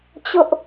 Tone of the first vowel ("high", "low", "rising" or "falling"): high